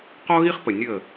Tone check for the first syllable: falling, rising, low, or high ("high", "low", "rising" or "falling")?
high